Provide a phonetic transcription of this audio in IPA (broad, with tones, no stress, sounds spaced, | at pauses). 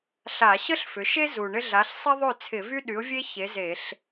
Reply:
ɬ a˧˩˧ ɕ ə˥ ɬ f ʏ˩˧ ʃ e˥ z u˨˩ ɳ ɪ˥ ɮ a˨˥ ɬ sˤ e˥ ðˤ ø˥˨ t͡sʰ ɪ˧˩˧ v y˥ ɗ y˨˥ ʊ̯ vʲ e˥ ç e˨˥ z e˧˩˧ ɬ